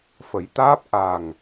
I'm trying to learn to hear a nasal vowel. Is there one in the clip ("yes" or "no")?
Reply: no